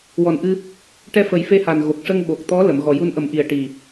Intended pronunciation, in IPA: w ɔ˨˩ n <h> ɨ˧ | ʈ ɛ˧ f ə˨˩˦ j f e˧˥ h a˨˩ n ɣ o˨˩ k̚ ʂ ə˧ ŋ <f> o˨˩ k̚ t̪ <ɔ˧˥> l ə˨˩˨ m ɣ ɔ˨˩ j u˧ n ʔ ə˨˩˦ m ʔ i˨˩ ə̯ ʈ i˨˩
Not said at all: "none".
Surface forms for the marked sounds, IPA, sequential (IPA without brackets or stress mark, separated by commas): ʔ, ɓ, ɔ˧˥